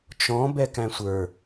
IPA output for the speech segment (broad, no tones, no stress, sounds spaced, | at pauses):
t͡ʃ ɔ̃ b ɛ k æ̃ sʷ ə˞